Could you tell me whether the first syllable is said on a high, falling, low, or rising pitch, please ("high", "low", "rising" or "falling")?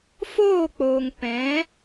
falling